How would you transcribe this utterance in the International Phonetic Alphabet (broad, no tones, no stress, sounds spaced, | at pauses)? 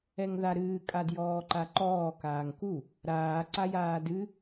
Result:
ɛ ŋ ð a ɾ ɨː kʼ a d j ɔː ǃ a ǃ ɔː k aː ŋ k u | ɾ aː ǀ a j aː d ɨ